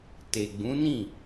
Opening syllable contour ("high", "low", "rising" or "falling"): low